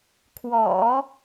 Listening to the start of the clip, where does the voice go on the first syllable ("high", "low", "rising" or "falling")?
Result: low